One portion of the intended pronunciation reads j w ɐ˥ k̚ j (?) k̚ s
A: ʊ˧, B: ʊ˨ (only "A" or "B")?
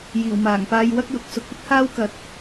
B